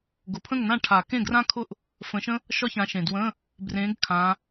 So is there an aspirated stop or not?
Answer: yes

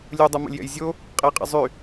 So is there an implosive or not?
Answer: no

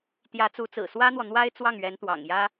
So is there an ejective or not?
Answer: no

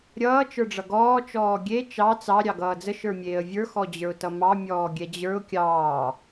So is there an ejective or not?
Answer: no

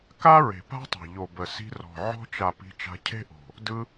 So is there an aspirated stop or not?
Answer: yes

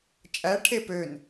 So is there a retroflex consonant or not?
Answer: yes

